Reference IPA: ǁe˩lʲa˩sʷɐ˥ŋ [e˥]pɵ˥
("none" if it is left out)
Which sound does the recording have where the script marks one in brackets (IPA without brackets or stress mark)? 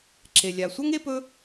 e˥